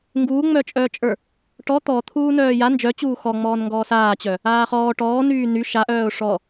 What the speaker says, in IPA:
ŋ ɡ uː ŋ͡m œ t͡ʃʼ œː t͡ʃʼ ə˞ | ʈ ɔ t̪ ɔ t̪ʰ uː n œː j a n d͡ʒ œ t͡ɕ uː x ɔ ŋ͡m ɔː n ŋ ɡ ɔː s aː t͡ɕ œ | aː χ ɔː ʈ ɔː n yː n y ʃ a ʔ œː ʊ̯ ʂ ɔ

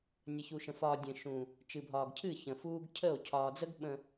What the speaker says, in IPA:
nʲ ə˨ ç u˨ ʃ ə̃˨ f ɒː˨ dʲ ə̃˨ ʃ ũ˨ | t͡ʃ ɨ˨ bʱ ɒː˨ ɡ cʰ ɨ˦˨ ç ə̃˨ f uː˦ ɡ cʰ ə˦˨ o̯ cʰ ɒː˨ d͡z ə˦ ɡ ɓ ə̃˨

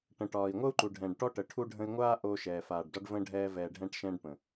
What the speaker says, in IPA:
ʈ ə̃˨ ʈ ɒː˨ i̯ ŋʷ ə˦ u̯ ǃ u˨ ɖʱ ɛ̃ː˨ ɖ ʈ ɔ˦ ʈ ə˨ ʈʰ u˦ ɖʱ ə̃˧ i̯ ŋʷ aː˦ ʔ o˧ ʃ ɛː˨ f aː˨ ɖ d ɒ˧ ɖ v ə̃ː˧ ɖʱ ɛː˧ v ɛː˨ ɖʱ ɛ̃˧ ʈ ʃ ɛ̃ː˧ ɖ p ə̃˨

